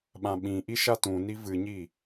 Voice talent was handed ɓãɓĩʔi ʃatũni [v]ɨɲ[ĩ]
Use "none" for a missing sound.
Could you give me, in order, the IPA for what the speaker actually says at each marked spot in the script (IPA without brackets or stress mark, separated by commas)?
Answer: v, i